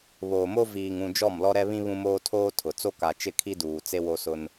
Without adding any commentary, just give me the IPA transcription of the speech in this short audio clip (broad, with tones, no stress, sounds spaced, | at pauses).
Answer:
β oː˨ m o˦ v iː˨ ŋ ũ˨ d͡ʒ ɔ˦˨ m l ɔ˦ ɾ ɛ˦ β ĩ˦ β ũ˦ m oː˦ tʰ oː˦ tʰ ʊ˨ t͡s o˦ k a˨ t͡ʃ ɪ˦˨ kʰ i˦ d uː˨ t͡s e˦ w o˦ s ʊ˦ n